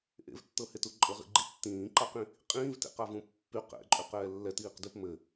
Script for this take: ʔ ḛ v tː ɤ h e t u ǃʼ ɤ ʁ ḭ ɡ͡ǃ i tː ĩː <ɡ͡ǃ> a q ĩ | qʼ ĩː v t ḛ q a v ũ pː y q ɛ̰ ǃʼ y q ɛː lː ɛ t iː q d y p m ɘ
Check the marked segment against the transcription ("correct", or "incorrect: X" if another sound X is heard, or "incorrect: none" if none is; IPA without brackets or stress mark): incorrect: ǃ